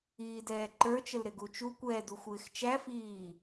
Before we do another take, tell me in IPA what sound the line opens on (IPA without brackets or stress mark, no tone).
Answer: iː